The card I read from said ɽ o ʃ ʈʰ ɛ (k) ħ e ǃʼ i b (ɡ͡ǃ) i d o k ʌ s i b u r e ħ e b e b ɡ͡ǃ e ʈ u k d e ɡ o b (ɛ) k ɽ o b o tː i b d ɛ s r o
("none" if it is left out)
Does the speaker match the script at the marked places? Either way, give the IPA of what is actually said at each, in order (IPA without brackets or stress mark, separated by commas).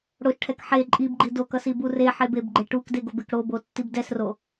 k, ɡ͡ǃ, e